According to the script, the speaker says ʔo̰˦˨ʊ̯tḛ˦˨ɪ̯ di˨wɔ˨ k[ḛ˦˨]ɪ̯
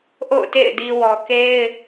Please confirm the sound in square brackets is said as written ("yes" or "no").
no